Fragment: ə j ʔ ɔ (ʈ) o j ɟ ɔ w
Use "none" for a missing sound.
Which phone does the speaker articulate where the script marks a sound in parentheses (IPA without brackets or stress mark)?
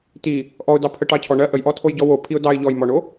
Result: tʰ